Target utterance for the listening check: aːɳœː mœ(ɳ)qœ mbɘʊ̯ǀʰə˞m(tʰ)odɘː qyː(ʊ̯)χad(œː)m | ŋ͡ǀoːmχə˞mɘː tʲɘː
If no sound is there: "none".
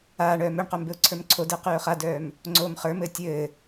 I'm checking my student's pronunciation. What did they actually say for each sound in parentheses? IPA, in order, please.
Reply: ɳ, ǀʰ, ʊ̯, œː

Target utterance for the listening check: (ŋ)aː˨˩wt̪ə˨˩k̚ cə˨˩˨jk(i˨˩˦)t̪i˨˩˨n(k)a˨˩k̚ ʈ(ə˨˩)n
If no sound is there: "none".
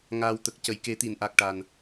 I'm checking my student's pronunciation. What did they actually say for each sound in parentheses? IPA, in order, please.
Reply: ŋ, e˨˩˦, ʔ, a˨˩

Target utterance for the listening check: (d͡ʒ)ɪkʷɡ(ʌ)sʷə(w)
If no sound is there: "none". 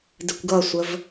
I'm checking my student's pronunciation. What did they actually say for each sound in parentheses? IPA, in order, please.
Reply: d, ʌ, v

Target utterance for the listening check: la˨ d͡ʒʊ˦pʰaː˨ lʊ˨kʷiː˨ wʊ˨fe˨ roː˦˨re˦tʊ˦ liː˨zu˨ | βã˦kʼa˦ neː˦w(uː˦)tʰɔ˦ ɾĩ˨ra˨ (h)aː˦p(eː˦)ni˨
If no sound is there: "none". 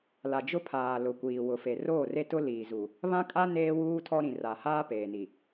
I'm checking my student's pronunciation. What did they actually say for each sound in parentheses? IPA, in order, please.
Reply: uː˦, h, eː˨

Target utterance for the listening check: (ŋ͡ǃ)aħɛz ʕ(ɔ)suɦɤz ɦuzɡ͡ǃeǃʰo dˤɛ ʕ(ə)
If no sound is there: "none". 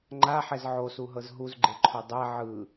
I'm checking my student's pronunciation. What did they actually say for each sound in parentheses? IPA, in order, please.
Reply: ŋ͡ǃ, o, ɯ

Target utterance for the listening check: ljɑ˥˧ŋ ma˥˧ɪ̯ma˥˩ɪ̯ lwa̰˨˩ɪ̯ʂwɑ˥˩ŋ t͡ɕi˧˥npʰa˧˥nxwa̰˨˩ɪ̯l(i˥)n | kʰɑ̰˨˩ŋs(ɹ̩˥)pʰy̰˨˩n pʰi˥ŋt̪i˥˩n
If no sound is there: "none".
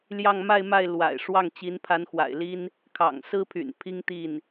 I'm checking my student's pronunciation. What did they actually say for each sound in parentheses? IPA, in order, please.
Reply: i˥, ɹ̩˥

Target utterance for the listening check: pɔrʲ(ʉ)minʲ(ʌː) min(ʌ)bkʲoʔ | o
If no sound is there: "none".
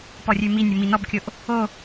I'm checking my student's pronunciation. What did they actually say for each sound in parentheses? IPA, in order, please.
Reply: ʉ, ʌ, ɔ

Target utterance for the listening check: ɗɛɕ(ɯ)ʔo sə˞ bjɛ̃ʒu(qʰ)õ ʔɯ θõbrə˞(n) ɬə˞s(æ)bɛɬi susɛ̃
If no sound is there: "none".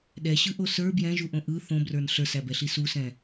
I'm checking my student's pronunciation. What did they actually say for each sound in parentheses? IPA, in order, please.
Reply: ɯ, ʔ, n, æ

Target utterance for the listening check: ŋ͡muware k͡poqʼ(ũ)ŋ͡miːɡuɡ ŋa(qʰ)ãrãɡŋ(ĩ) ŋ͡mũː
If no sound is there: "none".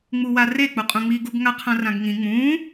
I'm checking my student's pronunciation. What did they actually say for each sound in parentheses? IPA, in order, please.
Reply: ũ, qʰ, ĩ

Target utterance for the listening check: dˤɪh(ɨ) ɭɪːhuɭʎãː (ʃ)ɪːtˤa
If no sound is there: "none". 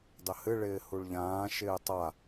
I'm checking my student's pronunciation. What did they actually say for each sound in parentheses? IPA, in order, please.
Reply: ɨ, ʃ

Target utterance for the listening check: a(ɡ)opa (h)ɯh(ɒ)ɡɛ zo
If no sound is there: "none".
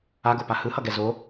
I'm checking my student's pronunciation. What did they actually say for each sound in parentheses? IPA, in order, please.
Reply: ɡ, h, ʌ

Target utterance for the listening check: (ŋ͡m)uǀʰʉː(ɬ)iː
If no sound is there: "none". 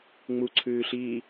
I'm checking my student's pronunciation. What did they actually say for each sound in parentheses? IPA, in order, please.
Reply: ŋ͡m, ɬ

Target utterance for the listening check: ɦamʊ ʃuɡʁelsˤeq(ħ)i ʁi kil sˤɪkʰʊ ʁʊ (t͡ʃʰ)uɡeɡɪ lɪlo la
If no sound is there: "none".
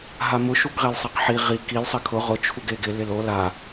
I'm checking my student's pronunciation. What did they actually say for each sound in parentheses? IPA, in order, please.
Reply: ħ, t͡ʃʰ

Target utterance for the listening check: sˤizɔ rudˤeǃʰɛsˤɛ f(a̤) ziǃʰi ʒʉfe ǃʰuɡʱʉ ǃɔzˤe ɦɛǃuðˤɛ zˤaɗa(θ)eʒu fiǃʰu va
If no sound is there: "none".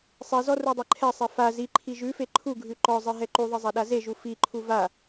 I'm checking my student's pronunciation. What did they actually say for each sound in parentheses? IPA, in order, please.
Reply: a, z

